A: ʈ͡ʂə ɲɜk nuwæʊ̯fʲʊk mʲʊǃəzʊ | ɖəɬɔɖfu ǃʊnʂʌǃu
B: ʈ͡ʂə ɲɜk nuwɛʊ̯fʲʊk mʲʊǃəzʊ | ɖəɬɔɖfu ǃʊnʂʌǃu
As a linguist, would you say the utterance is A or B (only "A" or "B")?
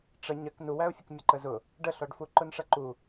A